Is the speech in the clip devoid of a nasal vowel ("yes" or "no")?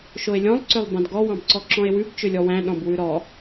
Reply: no